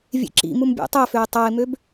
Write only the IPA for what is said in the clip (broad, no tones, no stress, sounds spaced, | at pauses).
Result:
vʲ ḛ ǁ ḭ m u m bʲ æ̰ tˤ æ f ø ɪ̯ tˤ ɑ ɪ̯ m ø b